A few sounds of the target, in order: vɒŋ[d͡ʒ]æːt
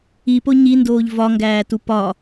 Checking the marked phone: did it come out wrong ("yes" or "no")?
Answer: yes